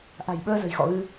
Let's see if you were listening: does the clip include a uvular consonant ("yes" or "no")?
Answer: no